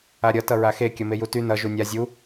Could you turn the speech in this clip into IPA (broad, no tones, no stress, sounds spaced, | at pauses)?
a ɾʲ ʌ t ʌ ɹ a x e kʲ ʌ m e j u t y n ʌ ʒ u nʲ a zʲ u